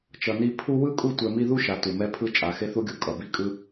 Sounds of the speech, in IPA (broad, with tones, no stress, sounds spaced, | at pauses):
t͡ʃ ʌ˨ n i˦ pʰ u˦ w ɯ˥ kʼ u˦ tʷ ɛ˨ m i˦ ð u˥ ʃ a˩ t u˩ m ɛ˦ pʰ ɯ˦ t͡ʃʼ a˩ x e˦ θ u˦ ɡʲ u˩ kʼ ʌ˩ b i˦ kʼ ɯ˥